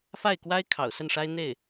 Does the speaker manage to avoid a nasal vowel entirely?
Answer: yes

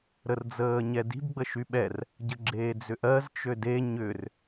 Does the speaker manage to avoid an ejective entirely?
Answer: yes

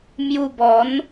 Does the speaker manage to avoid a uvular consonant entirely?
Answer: yes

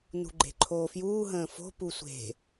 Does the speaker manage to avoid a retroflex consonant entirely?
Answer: yes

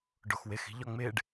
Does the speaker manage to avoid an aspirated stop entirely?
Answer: yes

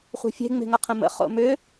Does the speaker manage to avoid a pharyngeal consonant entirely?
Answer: yes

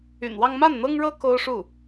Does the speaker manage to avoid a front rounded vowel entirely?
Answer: no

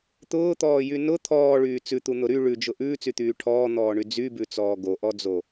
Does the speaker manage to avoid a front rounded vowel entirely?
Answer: no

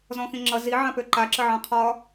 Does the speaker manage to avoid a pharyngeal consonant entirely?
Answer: no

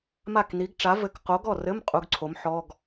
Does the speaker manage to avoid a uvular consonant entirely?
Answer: no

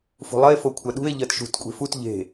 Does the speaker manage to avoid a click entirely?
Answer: yes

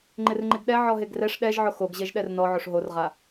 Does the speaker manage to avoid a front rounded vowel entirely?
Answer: yes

